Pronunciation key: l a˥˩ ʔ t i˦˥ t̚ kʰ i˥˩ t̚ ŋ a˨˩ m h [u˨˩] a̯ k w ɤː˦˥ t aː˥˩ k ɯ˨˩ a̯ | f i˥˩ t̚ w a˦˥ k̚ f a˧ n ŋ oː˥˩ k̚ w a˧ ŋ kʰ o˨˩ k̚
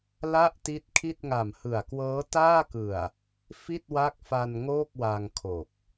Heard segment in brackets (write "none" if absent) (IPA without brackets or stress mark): ɯ˨˩